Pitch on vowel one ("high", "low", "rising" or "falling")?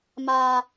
high